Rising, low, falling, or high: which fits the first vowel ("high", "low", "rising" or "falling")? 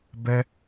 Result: high